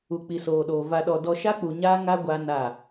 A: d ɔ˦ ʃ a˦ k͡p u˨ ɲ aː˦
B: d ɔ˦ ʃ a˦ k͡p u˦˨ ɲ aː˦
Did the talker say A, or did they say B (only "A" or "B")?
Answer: A